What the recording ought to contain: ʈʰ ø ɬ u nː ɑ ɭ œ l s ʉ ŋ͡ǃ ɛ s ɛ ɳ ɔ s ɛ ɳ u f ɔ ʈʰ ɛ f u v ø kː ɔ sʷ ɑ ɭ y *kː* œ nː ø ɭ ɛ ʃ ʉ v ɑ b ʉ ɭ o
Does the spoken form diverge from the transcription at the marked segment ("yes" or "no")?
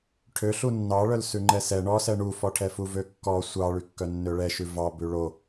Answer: no